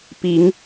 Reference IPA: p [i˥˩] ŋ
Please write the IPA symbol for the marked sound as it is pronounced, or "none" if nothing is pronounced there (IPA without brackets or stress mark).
i˧˥